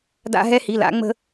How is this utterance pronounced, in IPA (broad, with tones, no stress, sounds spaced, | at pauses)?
d a̰˦ ɦ ɛ˦ h i˩˧˩ l a̰˨˩˦ ŋ͡m ə̤˦